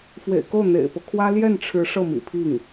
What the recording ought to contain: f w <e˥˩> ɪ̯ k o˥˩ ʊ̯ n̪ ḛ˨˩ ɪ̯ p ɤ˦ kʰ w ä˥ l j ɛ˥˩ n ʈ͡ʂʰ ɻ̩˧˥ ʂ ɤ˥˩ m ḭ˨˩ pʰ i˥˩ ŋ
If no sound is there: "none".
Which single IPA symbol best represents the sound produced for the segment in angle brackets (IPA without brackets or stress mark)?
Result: ḛ˨˩